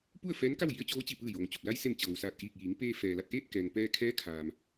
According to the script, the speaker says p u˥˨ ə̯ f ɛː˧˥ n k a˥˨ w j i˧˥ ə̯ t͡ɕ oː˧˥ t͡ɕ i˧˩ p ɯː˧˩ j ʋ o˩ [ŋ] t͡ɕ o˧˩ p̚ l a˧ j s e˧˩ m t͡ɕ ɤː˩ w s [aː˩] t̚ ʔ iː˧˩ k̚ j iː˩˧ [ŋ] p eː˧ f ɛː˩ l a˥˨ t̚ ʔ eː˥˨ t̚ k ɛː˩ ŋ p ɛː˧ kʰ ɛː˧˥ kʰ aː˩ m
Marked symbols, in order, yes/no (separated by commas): yes, no, yes